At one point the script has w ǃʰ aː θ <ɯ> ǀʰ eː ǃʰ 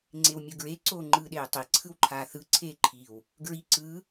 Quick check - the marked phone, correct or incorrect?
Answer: correct